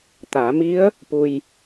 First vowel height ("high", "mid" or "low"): low